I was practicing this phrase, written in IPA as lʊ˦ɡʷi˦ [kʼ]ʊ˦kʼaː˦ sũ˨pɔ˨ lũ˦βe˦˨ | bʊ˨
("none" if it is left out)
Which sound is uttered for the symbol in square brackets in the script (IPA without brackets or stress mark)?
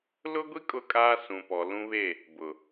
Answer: kʼ